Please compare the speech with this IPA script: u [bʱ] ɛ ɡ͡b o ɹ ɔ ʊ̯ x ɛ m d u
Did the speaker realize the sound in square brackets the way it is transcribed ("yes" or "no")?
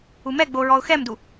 no